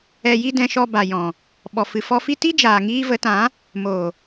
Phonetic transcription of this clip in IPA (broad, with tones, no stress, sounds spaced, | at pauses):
ɛ˧ j i˦ d ɛ̃˧ ʃ ɔ˧ b a˨ j ɔ̃˨ | ɓ ɔ˨ f ɨ˨ f ɔ˧ f i˦ t i˦ d͡ʒ aː˨ ŋ iː˧ v ə˨˦ t ã˨˦ | m o˨